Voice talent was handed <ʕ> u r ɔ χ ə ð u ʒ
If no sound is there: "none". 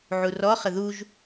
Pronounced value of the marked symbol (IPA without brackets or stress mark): ʕ